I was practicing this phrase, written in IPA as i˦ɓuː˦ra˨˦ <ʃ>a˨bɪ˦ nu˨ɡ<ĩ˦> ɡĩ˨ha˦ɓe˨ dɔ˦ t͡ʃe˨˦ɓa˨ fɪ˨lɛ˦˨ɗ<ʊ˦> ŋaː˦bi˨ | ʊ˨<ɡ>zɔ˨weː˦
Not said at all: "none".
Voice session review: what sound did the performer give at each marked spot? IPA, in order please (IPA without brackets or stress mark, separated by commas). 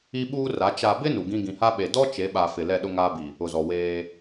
t͡ʃ, ĩ˦, ʊ˦, none